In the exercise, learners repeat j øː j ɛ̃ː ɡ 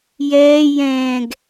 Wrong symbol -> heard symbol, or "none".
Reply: øː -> ɛː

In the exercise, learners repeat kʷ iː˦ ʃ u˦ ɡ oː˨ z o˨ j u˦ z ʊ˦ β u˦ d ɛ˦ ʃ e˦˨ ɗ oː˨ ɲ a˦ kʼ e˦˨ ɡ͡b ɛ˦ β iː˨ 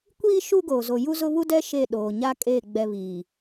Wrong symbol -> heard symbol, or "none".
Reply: none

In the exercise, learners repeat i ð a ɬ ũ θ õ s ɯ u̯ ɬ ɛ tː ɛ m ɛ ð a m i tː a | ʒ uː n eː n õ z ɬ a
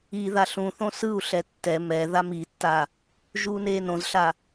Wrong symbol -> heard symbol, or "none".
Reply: none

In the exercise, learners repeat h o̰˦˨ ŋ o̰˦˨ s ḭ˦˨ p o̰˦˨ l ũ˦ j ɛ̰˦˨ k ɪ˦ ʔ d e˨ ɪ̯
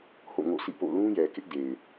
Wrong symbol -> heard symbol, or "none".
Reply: ɛ̰˦˨ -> ɛ˨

